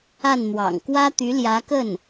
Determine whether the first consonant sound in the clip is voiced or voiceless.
voiced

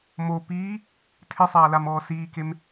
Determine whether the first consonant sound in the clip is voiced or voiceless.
voiced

